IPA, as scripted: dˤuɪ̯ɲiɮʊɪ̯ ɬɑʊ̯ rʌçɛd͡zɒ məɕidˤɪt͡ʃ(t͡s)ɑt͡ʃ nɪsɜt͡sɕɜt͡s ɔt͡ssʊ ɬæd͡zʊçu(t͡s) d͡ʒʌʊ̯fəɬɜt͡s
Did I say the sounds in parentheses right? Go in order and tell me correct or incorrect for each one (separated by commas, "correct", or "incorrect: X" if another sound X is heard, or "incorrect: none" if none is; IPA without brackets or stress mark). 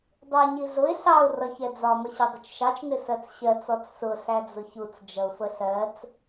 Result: incorrect: ʃ, correct